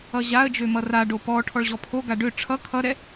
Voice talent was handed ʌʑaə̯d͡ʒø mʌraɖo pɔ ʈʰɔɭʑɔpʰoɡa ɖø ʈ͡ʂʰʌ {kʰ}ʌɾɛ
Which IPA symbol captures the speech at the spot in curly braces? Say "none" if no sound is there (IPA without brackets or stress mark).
kʰ